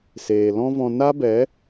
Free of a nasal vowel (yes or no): no